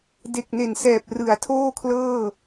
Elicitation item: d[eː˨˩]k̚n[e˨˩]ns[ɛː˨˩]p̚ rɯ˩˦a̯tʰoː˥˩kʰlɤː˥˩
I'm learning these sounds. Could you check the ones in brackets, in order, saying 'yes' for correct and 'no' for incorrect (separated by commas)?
no, yes, yes